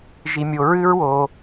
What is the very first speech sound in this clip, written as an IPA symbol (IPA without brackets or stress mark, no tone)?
ʒ